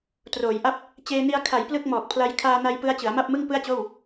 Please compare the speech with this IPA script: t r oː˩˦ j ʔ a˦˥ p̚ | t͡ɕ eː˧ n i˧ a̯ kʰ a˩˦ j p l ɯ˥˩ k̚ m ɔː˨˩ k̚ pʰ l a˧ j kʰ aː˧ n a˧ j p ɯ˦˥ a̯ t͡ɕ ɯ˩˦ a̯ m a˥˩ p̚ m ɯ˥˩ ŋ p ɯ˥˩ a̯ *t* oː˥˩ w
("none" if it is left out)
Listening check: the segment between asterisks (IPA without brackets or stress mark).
t͡ɕ